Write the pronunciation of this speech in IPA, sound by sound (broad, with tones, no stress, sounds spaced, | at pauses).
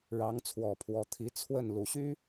ɻ ɑ˧˥ ŋ t͡sʰ w ɔ˨˩ pʰ w ɔ˧˥ t̪ʰ i˧˥ t͡sʰ w ə˥˩ n l u˨˩ ɕ y˥